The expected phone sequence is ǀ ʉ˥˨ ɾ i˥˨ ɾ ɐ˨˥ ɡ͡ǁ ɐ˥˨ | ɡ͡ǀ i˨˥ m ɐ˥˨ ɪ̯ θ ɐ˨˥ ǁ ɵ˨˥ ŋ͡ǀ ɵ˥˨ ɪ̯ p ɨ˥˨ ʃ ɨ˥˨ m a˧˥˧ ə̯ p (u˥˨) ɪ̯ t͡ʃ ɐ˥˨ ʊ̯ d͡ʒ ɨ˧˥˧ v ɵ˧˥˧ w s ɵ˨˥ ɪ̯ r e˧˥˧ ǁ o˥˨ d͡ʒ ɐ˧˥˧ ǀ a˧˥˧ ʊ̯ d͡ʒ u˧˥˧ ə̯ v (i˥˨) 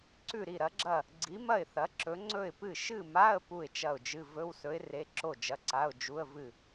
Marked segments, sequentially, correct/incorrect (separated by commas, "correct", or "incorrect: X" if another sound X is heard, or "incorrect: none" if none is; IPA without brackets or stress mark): correct, incorrect: ɨ˥˨